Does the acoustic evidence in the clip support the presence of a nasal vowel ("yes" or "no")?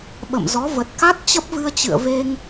no